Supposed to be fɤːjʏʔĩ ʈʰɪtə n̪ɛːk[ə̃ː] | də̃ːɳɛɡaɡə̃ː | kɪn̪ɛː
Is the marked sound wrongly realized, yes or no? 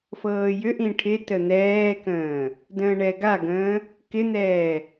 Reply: no